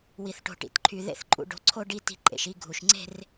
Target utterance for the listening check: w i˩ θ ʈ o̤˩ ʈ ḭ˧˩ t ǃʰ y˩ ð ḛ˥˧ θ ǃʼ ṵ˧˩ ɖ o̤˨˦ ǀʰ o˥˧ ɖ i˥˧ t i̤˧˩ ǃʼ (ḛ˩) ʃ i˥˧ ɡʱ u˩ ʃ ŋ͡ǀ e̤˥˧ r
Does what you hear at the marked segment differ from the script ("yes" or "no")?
no